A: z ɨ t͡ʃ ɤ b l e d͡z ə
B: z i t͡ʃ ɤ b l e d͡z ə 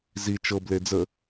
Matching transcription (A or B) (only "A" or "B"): B